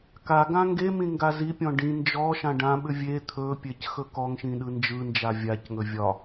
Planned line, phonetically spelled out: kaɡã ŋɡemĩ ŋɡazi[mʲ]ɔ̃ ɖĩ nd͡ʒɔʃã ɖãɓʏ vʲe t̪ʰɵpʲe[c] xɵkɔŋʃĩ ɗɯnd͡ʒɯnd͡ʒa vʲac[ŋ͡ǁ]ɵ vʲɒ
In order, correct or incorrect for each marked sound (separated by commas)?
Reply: incorrect, correct, incorrect